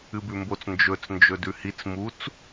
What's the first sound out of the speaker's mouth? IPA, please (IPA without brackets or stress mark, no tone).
ɨ